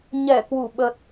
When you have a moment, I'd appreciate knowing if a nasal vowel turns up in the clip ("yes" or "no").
no